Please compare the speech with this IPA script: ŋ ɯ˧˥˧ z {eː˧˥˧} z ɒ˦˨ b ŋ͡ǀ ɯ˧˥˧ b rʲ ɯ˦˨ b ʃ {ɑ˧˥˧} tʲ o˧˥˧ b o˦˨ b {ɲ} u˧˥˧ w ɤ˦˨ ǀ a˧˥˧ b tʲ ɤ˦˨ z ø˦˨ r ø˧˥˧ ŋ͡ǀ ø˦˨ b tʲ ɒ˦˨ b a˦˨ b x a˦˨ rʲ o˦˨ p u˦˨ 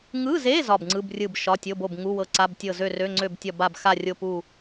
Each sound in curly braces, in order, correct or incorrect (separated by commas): incorrect, incorrect, incorrect